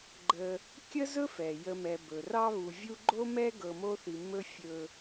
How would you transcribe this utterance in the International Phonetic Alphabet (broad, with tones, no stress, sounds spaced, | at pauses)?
ɡ͡ǃ ə˨ | kʲ ə˥ z ɵ˥ f ɛ˩ j ə˨ m ɛ˩ b ɵ˩ r ɑ˦ β u˨ vʲ u˦ ɡ͡ǃ o˥ m ɛ˥ ɡ ɤ˨ m o˦ θ i˨ m ɵ˥ fʲ ɵ˦